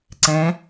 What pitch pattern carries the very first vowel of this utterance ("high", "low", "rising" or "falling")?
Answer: rising